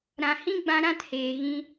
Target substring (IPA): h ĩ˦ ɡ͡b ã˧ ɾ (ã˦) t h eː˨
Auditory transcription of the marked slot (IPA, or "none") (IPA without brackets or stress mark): ã˦